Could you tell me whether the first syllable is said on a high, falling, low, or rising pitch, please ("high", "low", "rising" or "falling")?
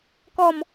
falling